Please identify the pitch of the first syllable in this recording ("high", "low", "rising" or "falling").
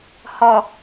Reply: low